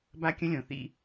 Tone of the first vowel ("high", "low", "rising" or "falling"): high